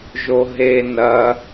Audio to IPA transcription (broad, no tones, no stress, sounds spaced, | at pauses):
ʒ o ɦ e n ɐ